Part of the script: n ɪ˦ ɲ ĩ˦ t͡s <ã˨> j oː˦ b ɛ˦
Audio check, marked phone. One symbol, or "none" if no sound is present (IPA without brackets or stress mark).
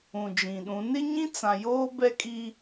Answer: ã˨